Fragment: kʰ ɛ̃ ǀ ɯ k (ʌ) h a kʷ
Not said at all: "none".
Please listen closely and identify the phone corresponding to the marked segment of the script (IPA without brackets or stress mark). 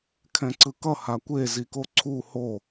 ʌ